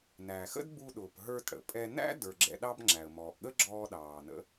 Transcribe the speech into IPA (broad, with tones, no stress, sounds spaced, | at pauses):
n æ˩ x ə̰˥ d b u˧ ɗ ʊː˩ p ɦ ə˞˧ t ɽ ə̰˩ pʼ ɛ˧ n æ̰˥ d ə˞˩ ɡ͡ǁ ɛ̰˧ ɗ ɑ˥ b ŋ͡ǁ æ˩ ə̯ m ɔː˩ ʔ ɠ ə˥ ɡ͡ǁ ɔː˧ ɗ ɑː˩ n ə̰˧